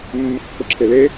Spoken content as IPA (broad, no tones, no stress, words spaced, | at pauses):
mːʊkːʊǁʰɪle